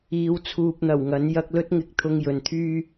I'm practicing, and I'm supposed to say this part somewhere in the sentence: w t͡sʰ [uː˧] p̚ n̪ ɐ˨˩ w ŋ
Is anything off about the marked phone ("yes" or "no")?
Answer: yes